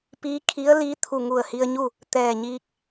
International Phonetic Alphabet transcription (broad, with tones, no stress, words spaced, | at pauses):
piː˧˥kʰi˧˥ə̯liː˧˥t̪ʰu˧˩ ŋu˧˩ə̯hi˧ə̯ɲu˥˨ | t̪ɛː˧˩ɲiː˧k̚